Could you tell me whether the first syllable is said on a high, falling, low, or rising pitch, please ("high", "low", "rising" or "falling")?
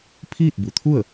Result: falling